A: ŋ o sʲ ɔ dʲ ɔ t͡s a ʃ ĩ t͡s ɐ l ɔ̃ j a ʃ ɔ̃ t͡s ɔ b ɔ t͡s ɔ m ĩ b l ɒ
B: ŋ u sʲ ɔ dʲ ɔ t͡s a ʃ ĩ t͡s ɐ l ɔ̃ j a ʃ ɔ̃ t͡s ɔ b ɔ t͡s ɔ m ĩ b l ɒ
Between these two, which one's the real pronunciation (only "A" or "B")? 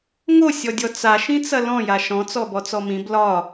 A